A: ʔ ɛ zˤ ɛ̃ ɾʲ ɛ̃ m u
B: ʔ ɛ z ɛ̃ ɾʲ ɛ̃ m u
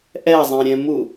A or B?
A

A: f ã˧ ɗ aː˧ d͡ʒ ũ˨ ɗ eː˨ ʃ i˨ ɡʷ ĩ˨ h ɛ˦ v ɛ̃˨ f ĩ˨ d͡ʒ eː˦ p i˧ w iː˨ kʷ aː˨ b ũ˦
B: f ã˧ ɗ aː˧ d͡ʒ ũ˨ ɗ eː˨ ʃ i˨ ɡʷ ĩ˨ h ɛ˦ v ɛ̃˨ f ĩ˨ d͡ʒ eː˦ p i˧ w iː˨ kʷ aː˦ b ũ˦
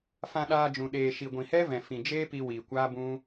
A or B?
B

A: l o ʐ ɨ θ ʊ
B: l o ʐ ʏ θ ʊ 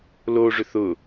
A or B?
B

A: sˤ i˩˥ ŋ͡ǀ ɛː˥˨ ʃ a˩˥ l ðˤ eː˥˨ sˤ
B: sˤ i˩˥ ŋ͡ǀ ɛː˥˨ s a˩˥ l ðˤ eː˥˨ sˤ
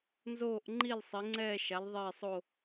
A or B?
A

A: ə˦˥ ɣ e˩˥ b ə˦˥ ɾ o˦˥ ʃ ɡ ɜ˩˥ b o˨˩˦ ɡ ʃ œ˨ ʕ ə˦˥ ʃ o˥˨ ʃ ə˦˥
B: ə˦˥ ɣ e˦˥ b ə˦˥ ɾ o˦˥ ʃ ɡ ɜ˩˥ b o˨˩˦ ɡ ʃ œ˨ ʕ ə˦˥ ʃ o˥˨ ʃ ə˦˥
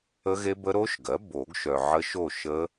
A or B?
B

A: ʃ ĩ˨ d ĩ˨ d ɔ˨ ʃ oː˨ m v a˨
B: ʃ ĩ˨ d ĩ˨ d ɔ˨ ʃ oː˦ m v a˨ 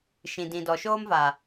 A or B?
B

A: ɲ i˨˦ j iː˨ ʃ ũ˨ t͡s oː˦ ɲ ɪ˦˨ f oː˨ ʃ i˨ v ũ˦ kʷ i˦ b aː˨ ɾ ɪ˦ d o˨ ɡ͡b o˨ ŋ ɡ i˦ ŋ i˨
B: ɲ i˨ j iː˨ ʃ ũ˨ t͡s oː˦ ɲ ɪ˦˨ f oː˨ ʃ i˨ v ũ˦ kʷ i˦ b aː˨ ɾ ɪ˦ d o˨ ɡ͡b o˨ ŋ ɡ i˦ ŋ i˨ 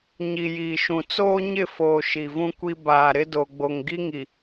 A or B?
B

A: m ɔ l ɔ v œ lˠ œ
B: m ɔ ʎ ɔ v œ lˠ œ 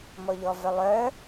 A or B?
B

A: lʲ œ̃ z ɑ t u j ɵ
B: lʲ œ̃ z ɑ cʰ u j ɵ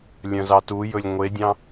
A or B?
A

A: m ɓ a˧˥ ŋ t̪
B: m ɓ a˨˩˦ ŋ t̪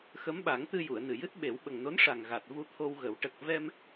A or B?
B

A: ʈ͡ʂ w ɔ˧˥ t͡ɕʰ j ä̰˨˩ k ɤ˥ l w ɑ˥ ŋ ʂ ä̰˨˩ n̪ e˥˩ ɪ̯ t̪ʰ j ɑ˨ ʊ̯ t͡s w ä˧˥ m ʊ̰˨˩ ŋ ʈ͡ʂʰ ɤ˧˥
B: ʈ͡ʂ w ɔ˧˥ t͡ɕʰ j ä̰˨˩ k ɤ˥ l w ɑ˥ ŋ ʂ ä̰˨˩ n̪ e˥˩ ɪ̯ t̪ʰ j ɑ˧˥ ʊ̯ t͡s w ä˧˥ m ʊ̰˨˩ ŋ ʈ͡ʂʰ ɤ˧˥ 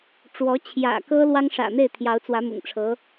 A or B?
B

